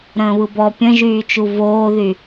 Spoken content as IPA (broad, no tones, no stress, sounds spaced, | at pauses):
ɾ ə̃ː β ɯ b ɔ pʲ ə̃ ʒ yː t͡ʃ u v oː ð y